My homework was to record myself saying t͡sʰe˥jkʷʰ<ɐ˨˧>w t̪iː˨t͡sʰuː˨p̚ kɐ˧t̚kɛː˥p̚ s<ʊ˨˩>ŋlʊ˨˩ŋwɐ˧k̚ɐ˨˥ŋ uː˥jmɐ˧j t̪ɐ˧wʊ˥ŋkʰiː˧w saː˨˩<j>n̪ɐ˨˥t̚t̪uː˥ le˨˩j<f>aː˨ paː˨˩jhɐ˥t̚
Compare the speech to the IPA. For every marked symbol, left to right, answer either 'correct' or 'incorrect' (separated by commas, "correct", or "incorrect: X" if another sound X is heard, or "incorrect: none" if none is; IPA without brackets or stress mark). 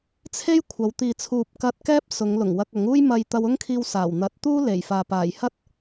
correct, incorrect: ʊ˨˧, incorrect: w, correct